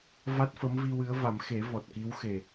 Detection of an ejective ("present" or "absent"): absent